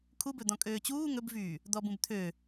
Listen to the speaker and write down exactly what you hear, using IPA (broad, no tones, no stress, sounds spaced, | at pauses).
kʰ u b ɵ d̪ ɔ̃ kʼ øː t͡ɕ uː ŋ ɵ b v yː | d̪ ɔ b ũ b t̪ʰ ø